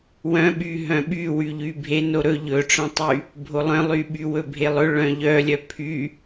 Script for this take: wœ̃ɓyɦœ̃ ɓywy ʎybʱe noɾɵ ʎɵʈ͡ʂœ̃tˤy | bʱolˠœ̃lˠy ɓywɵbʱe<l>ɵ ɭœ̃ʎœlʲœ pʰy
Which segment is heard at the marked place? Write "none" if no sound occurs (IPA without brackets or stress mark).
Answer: lˠ